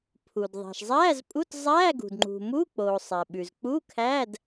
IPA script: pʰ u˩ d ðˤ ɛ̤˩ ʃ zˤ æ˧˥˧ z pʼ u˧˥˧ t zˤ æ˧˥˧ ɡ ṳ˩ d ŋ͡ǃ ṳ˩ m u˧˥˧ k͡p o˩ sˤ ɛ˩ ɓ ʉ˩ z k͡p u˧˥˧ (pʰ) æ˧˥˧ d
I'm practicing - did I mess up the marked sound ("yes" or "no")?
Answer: yes